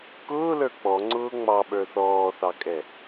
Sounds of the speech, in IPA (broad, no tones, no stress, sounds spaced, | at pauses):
k ʊː l ə˞ k͡p ɔ ŋ͡ǀ ʊː ŋ͡m ɑ ɓ ə˞ θ ɔː θ ɑ kʼ ɛ